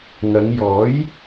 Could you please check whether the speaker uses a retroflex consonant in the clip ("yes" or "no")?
no